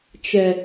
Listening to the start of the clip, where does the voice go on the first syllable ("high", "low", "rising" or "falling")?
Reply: low